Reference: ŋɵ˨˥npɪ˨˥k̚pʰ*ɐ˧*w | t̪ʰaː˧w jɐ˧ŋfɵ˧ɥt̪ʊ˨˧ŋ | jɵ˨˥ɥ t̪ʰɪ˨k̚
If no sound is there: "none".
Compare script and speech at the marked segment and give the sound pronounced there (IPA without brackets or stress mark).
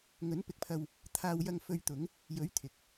ɐ˧